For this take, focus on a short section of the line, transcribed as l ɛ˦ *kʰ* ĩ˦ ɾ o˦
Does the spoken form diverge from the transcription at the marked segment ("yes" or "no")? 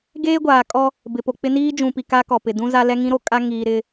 yes